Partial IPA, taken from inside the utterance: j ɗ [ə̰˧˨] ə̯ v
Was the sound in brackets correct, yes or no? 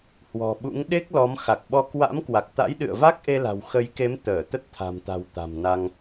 no